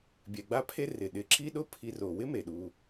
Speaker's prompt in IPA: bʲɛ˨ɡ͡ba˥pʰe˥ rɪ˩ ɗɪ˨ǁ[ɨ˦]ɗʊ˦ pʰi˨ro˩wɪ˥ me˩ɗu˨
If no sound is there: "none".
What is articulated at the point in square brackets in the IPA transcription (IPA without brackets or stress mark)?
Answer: i˦